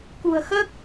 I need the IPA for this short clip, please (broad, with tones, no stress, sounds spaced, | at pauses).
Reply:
k ṳ˨˩ ə̯ x əː˦˥ k̚